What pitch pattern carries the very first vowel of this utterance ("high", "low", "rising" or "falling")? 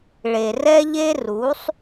low